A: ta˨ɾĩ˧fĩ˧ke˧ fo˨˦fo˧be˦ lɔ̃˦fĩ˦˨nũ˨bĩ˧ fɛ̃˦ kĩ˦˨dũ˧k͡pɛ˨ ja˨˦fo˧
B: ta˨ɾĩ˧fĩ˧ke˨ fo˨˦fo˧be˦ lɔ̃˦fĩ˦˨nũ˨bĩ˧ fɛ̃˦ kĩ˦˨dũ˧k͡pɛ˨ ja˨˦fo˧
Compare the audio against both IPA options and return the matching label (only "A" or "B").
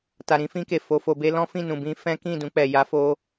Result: B